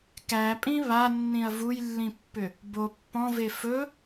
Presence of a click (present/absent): absent